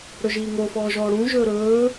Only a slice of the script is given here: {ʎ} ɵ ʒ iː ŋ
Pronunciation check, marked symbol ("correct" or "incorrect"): incorrect